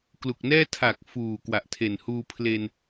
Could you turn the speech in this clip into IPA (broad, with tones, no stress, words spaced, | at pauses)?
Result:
klu˨˩k̚nɛː˥˩ tʰa˨˩k̚ fuː˨˩ kwa˨˩ʔtʰe˨˩n huː˧ pʰle˧n